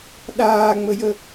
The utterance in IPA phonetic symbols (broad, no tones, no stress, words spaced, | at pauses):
ɗaːŋ͡məjə